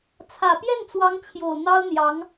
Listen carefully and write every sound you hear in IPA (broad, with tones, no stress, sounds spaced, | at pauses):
t͡sʰ ä˨˩ p j ɛ˥˩ n t͡s w ɑ˧˥ ŋ t͡ɕʰ j o˨˩ ʊ̯ n̪ ɑ˥ ʊ̯ n̪ j ɑ˧˥ ŋ